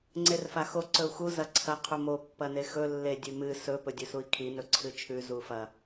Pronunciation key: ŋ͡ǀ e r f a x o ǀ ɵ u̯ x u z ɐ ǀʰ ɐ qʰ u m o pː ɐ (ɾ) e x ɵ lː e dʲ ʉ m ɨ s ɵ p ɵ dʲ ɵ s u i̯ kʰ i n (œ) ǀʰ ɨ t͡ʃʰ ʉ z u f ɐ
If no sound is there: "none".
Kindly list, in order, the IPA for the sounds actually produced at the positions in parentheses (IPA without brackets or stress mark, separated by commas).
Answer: n, ɵ